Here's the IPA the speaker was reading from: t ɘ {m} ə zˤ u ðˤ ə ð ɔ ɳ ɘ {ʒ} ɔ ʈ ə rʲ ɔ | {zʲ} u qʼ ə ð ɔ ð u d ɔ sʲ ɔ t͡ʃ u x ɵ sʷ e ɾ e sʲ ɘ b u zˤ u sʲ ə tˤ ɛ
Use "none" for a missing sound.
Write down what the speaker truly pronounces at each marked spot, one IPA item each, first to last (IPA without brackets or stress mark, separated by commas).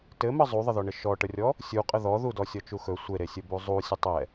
m, ʃ, sʲ